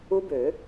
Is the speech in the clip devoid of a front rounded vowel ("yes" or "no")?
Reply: no